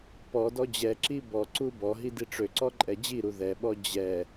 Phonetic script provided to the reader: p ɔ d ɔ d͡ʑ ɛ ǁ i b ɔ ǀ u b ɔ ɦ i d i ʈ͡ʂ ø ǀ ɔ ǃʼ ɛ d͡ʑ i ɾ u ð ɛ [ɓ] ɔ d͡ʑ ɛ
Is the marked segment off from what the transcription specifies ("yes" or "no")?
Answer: no